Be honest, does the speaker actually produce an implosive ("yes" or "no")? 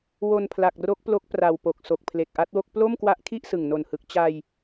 no